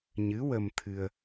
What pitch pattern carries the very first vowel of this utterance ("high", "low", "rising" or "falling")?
rising